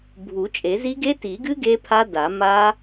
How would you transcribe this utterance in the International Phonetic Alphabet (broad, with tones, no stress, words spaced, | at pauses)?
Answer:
bʱu˨˩˦t͡ʃʼe˨˩˦zi˦˥ ɡe˦˥ti˨˩˦ɡɨ˦˥ ɡe˦˥pʰa˦˥da˨˩˦ ma˦˥